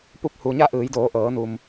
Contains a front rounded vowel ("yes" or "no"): no